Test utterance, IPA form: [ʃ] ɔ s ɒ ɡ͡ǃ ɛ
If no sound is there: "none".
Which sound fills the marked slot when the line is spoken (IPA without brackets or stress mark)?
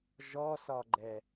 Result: ʒ